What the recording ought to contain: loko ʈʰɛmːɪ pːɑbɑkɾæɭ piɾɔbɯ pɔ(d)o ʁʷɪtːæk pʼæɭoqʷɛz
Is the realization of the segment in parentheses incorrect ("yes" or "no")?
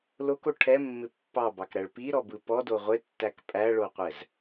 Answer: no